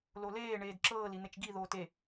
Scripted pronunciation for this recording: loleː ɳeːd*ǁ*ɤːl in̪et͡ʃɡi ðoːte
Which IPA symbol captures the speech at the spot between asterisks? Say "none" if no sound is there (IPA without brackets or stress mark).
ǁ